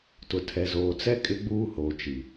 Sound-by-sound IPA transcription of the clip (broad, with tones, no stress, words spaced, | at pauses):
tʊ˨tʰɛ˨zoː˨t͡sɛ˦ kʼɪ˦ɡ͡buː˦hoː˨t͡ʃi˨